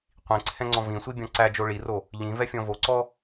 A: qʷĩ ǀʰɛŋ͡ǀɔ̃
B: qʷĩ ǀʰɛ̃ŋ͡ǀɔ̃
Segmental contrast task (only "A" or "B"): B